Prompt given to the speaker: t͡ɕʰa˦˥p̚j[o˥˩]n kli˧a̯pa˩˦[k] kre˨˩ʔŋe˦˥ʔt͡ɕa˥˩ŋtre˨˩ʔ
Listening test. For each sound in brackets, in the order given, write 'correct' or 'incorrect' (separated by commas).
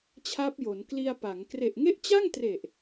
incorrect, incorrect